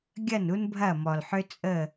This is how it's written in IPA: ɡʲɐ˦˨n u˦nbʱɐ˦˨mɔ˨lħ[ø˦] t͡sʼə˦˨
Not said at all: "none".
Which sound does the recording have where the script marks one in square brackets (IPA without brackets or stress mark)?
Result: ø˦